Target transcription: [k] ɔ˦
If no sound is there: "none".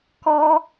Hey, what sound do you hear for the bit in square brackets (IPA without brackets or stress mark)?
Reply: k